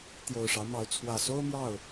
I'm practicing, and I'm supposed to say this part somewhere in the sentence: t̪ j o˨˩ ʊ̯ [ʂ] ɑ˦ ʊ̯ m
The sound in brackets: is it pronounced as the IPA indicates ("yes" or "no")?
yes